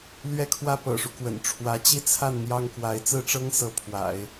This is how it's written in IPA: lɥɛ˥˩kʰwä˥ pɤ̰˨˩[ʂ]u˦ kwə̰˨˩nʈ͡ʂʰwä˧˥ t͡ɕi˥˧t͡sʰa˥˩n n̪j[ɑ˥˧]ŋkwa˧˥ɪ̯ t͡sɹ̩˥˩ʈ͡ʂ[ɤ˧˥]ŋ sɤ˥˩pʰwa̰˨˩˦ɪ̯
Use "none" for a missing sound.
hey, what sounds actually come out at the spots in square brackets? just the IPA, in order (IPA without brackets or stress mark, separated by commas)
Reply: ʂ, ɑ˥, ɤ˥